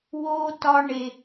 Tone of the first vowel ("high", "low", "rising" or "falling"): high